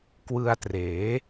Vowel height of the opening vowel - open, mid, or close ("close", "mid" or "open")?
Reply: close